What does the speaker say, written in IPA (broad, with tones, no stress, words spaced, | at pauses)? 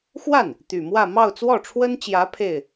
xwa˥˩n | t̪y˨˩mwä˥˧ mɑ˥˧ʊ̯t͡swɔ˥˩ʈ͡ʂʰwə˥nt͡ɕjä˧˥ pʰe˥˩ɪ̯